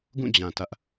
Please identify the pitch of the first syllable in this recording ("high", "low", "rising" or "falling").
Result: falling